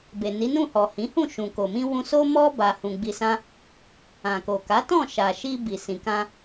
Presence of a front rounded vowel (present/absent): absent